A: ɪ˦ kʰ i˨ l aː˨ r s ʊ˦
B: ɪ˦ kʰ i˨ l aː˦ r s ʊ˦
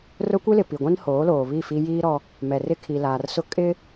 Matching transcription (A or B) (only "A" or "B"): A